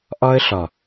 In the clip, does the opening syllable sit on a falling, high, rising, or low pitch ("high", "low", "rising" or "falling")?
high